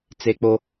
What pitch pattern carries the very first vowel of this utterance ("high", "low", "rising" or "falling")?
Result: high